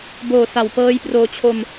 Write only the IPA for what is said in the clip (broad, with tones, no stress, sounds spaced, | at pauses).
b oː˨˩ s a˨˩ w p ɤː˦˥ j p r oː˧ t͡ɕʰ o˧ m